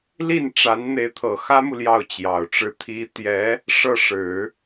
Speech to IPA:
li˥˩nʈ͡ʂa˧˥n n̪e˧˥ɪ̯t̪ʰɤ˨˩xä˥mu˨ ljɑ˥˩ʊ̯t͡ɕjɑ˨˩ʊ̯ʈ͡ʂɻ̩˥˩t̪ʰi˥ t̪jɛ˧˥ | ʂɤ˥˩ʂɻ̩˨˩˦

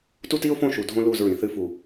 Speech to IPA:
tu˦ti˦ʊ̯fõ˦˨ ʃu˨dʱõ˦ lu˦˨zɹĩ˨θɨ˦ fu˨

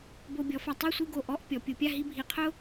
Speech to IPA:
bo˧bʲɔ˩˧fa˧ tˤo˥˧sʷi˥˧ɡo˧˩ ʔɔ˥˧ʔ pʲɔ˩˧pʲu˩˧pʲa˥˧ɦi˥˧ bʱi˧qʰʊ˥

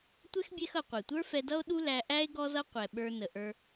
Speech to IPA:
tʷɛ˦xbʲɛ˧xʌ˨ qʷɛ˨tʷə˞˦fɛ˧dʌ˦o̯ ɗu˦læ˧ʔæ˦e̯ ɡɔ˦zʌ˦qʷɛ˨ ɓə˞˧nə˨ʔə˞˧

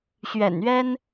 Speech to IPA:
ɕɥɛ̰˨˩nɥɛ˦n

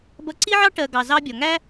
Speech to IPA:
bʌ˧ǀi˦ʕɑ˦ ʈɜ˨ ɡɑ˨zɑ˧bʲɒ˨ŋæ˦

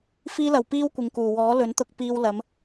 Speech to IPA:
fiː˧lɐ˨˩w piː˥wkʷɪ˨ŋkuː˨˩ wɔː˨˥lɵ˨˥nt̪ʊ˧k̚ piː˧w lɐ˨˧m

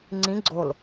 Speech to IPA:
ŋ͡ǀĩ ɡ͡ǀol

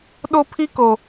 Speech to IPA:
ɗo˦pʰi˦ko˨

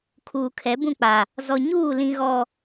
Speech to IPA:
kʰuː˨kʰɛ˨˦ bũ˦˨k͡pa˨ | zɔ˨ɲuː˦˨lĩ˨ ɣɔ˨

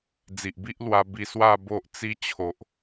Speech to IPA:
d͡zi˨ʔbi˦ʔlwa˧ bi˧swa˥˧ bo˦ʔt͡si˦ t͡ɕʰo˨ʔ

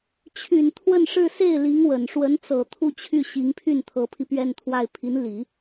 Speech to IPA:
t͡ɕʰy˨˩n t̪ʰwə˥˧nʂɻ̩˥˧ se˥˩ɪ̯li˧˥ŋwə˨˩n ʂwə˧˥nt͡sɤ˨˩ t̪ʰu˥˧t͡ɕʰy˥˩ ɕi˧˥ŋpʰy˥˩nt̪ʰɤ˧˥pʰi˧ pɥɛ˥˧nt̪ʰwa˥˩ɪ̯ pʰi˧˥n li˨˩˦

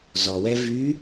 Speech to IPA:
zɔwɛ vy

